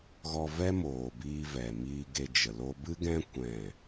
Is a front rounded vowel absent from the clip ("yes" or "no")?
yes